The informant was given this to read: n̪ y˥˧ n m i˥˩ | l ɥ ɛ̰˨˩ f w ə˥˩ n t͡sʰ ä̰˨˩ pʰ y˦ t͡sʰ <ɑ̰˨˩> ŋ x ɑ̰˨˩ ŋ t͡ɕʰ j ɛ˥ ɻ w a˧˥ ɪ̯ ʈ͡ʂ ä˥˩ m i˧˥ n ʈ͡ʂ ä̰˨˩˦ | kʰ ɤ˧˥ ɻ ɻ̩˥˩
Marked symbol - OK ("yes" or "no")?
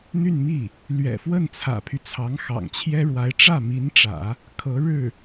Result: no